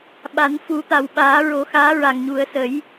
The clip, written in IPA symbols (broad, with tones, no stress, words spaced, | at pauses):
ɓa˨˩˦nfu˨˩˦t̪a˨˩wɓaː˨˩˦ ɹo˨˩˦xaː˧˥ɹa˨˩ŋɲu˨˩˦ə̯ sə˨˩˦j